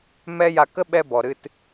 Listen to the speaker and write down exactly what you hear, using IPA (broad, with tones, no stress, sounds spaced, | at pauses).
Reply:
m ɛ˦ j a˧ k ə˦ ɓ ɛ˧ b ɔ˨ ɾ ɨ˧ t